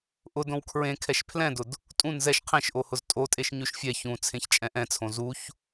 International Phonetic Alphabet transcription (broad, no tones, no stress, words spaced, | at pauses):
ʔʊdõw kʰɹẽkʰɛʃ pʰlɛ̃dʊd | tʼũn zɛʃ qʰẽʃʔohʊz tʼotʼeʃ ɲʉʃfʲɛ çũ t͡sʰẽçt͡ʃʼɛ̃ʔɛ̃t͡sʰõ zuç